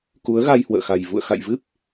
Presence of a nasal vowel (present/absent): absent